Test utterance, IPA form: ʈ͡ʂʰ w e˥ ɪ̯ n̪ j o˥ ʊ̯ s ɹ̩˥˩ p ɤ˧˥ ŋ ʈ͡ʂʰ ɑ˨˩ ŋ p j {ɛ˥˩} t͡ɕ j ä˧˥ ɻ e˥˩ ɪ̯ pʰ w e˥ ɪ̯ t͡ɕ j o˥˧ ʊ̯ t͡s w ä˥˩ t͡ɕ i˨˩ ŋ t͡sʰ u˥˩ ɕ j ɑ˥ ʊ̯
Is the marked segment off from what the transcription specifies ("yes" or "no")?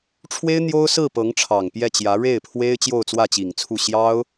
no